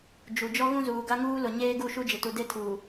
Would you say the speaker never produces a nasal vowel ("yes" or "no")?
no